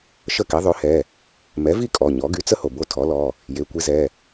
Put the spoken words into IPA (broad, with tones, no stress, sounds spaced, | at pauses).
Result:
ʃ ə˥˨ k i˩˥ ðˤ ø˩˥ h ɛ˩˧˩ | m ɛ˩˥ v i˥˨ kʼ ɔ˩˧˩ ɲ ɔ˩˥ ɡ y˩˥ t͡s ə˦ h o˩ b o˦ tʰ ɔ˩˥ l ɔ˩˧˩ | j e˩˧˩ kʷ i˦ z ɛ˩˧˩